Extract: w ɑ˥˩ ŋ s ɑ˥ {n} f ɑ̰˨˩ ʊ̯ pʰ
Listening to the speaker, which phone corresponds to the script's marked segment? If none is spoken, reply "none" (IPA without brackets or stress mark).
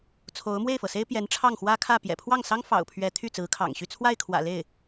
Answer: ŋ